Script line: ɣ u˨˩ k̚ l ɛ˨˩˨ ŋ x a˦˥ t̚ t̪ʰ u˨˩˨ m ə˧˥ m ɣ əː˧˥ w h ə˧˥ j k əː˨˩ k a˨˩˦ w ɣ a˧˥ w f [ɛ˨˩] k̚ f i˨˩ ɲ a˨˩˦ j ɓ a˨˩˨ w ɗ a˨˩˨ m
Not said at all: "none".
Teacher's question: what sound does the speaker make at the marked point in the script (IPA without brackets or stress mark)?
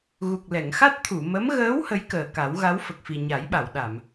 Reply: ə˨˩